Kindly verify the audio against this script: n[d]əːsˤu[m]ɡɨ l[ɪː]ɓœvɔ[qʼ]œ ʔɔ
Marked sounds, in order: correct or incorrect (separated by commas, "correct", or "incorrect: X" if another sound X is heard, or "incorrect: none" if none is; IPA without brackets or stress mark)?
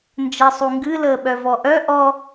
incorrect: d͡ʒ, incorrect: ŋ, incorrect: əː, incorrect: ʔ